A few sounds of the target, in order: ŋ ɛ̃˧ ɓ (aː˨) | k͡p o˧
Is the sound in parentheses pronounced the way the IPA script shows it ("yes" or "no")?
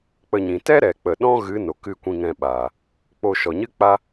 yes